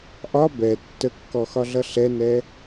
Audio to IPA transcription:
ʔ ɒ b ɛ tː ə kː ɔ x ɒ ɮ ʌ ɬ ɛ n ɛ

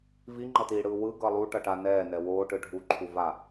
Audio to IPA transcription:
v i ŋ͡ǃ ʌ t iː ɽ ɯː w ɯ ɡ ʌ lˠ u ʈ ʌ ʈ a n ɛː n ɛ w oː ʈ ɯ ɖʱ u ǃʰ u v a

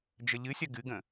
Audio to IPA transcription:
d͡ʒ ə ʎ ɨ sʲ ɐ ɡ ɨ ɡ ə̃

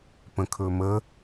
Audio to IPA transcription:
p ə̃ kʰ ɵ m ə

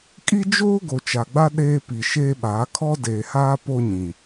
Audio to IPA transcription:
kʼ i˦ d͡ʒ oː˦ ɡ o˨ t͡ʃ a˨ ɡ͡b a˦ ɗ eː˦ p i˨ ʃ eː˦ ɓ aː˨˦ kʰ ɔ˦ d eː˨ h aː˦ p o˦ ɲ ĩ˨

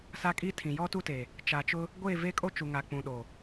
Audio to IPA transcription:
s a˦ kʼ i˦ tʰ ĩ˨ j ɔ˦ t u˦ t e˨ | t͡ʃ a˨ t͡ʃ ʊ˦ | ɡʷ eː˦˨ v e˦ kʼ o˦ t͡ʃ u˨ ŋ a˨ k͡p ũ˨ ɗ o˨

